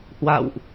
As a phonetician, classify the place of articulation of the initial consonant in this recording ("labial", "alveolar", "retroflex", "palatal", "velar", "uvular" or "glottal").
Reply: glottal